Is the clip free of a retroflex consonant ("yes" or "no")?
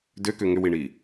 no